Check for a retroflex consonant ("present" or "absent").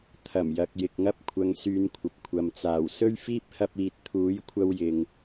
absent